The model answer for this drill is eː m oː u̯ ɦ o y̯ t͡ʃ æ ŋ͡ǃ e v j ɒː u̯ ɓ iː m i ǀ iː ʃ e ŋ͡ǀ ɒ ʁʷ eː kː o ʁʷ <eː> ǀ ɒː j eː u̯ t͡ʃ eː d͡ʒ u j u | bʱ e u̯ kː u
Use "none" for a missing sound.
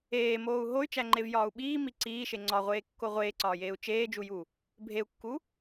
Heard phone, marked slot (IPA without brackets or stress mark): eː